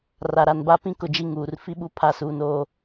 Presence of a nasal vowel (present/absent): present